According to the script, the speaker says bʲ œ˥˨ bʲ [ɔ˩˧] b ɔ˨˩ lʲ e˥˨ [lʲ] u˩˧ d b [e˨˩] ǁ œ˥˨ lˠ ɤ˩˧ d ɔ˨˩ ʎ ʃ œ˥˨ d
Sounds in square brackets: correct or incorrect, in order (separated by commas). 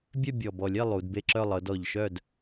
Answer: incorrect, incorrect, incorrect